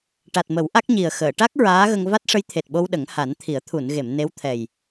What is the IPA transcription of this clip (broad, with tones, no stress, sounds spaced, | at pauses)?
ʈ a˨˩ t̚ m ə˨˩˦ w ʔ a˦˥ k̚ ɲ i˨˩ ə̯ x əː˨˩˨ ʈ a˦˥ k̚ ɹ aː˧˥ ɣ ə˧ ŋ v a˦˥ t̚ ʂ ə˧˥ j t̪ʰ e˨˩ t̚ ɓ o˧ w ɗ ə˨˩˦ ŋ h a˨˩˦ n t̪ʰ i˨˩˦ ə̯ t̪ʰ u˨˩˨ n ɣ e˨˩˨ m n e˧˥ w t̪ʰ ɛ˨˩ j